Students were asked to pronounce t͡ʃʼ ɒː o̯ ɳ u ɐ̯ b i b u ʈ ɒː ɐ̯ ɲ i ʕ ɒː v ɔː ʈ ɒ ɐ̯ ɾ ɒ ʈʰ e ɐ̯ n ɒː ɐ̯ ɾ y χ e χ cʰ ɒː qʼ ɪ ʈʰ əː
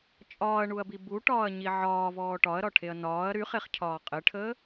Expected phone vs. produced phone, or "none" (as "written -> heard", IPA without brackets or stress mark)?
o̯ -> ɐ̯